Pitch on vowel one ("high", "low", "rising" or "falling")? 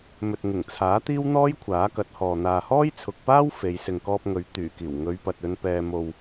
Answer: low